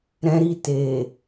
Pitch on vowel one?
high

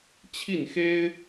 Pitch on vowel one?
falling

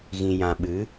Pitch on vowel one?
low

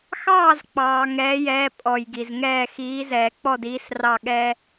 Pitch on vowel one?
falling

